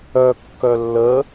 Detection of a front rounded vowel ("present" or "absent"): present